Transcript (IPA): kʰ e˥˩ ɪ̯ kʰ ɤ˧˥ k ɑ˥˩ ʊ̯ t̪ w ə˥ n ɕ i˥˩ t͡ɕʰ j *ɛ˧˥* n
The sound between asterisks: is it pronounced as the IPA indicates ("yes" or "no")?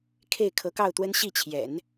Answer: no